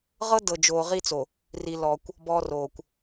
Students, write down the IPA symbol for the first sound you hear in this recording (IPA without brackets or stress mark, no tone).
ʁ